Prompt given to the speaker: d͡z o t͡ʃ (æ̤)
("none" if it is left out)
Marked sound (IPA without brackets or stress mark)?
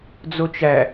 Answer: æ